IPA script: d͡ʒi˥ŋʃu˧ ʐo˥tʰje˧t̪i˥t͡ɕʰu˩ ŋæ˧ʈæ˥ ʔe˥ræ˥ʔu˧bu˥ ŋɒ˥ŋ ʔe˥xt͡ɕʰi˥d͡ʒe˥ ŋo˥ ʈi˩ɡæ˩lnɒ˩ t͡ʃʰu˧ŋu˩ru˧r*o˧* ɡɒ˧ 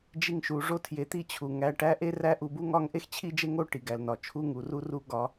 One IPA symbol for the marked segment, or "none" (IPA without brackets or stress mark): u˧